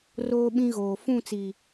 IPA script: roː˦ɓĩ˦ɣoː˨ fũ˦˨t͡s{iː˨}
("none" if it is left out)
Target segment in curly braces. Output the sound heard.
i˨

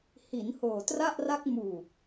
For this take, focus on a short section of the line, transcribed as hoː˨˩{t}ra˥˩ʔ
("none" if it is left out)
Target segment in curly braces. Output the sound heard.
t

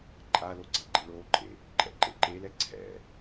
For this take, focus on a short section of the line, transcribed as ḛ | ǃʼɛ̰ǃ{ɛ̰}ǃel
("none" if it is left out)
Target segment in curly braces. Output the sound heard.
ḛ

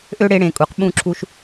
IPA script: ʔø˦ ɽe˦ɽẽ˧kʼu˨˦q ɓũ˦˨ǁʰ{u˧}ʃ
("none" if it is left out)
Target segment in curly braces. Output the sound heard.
u˧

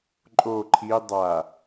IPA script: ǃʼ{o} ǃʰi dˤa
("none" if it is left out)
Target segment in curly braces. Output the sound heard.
o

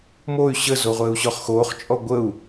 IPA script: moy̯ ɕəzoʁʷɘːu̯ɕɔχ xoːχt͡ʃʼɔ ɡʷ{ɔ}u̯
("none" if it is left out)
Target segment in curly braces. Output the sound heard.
ə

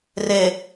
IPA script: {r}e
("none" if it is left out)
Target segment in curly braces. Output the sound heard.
r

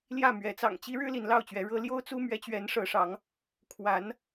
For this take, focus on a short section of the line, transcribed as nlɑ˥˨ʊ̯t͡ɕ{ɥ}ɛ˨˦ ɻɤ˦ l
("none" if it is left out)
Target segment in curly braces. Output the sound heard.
ɥ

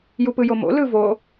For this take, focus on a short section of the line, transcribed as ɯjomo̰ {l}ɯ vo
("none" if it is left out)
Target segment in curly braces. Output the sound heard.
l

